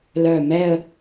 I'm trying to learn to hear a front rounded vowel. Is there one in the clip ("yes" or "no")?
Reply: yes